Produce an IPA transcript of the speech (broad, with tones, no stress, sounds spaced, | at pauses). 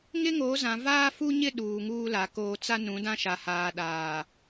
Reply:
ŋ ɪ˦ ŋ o˨˦ z ã˨ v aː˦ f u˦ ɲ ɪ˦ ɗ uː˨ ŋ uː˦ l a˨ k oː˦ t͡s a˦ n ũ˨˦ d ã˦ ʃ a˨ h aː˨ ɗ aː˨